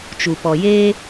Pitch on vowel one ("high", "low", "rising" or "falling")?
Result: low